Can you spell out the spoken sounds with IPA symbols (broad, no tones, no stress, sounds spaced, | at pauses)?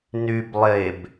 n y b lˠ e b